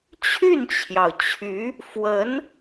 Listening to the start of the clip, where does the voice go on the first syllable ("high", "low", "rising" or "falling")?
falling